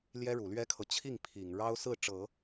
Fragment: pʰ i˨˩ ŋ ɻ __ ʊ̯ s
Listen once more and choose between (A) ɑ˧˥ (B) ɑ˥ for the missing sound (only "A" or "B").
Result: B